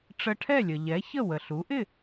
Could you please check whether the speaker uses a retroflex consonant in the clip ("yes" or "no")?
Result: yes